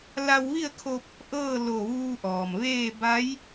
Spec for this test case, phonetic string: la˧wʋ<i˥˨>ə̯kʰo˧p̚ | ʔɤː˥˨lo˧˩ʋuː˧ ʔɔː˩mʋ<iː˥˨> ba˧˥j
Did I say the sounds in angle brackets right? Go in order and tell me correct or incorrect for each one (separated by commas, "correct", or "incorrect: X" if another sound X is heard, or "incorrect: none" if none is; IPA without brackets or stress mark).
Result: correct, incorrect: eː˥˨